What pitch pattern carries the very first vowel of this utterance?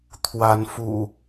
rising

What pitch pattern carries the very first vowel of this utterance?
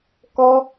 high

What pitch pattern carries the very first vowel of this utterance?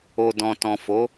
low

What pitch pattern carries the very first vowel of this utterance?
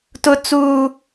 high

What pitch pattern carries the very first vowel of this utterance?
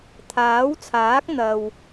rising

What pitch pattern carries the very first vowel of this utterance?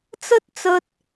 high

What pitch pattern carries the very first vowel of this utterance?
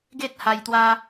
high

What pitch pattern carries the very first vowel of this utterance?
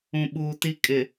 low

